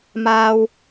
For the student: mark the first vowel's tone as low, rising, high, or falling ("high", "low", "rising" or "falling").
high